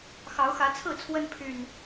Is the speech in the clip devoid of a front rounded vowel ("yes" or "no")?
no